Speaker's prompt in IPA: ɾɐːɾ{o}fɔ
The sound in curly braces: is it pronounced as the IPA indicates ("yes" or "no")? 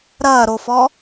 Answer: yes